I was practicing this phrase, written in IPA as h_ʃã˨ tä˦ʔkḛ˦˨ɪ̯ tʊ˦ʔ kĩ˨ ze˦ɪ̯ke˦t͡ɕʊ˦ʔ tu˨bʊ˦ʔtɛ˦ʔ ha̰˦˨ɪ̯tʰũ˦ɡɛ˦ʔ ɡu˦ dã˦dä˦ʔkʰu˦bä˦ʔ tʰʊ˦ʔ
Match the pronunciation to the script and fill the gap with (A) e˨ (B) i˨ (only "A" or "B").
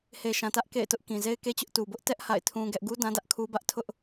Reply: A